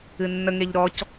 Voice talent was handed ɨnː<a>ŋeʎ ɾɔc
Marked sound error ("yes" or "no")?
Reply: yes